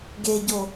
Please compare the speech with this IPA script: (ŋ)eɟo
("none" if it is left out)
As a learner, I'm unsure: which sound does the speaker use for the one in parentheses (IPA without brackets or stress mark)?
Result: ɡ